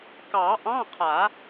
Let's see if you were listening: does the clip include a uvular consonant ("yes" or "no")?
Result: yes